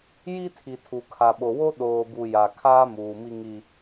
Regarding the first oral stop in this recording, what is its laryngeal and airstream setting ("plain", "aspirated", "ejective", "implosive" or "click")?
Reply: aspirated